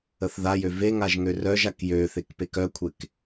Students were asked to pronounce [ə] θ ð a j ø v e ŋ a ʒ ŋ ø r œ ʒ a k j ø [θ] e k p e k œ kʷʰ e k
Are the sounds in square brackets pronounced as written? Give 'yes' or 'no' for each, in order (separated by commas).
yes, yes